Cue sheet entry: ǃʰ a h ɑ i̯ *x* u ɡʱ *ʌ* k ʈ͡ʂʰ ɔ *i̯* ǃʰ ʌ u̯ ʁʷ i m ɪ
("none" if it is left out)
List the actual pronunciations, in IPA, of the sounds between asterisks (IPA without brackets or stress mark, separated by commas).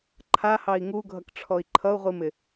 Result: ŋ, ʌ, i̯